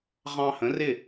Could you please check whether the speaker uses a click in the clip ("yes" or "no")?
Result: no